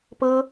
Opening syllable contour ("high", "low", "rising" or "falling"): high